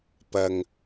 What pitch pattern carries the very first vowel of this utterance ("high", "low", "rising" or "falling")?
low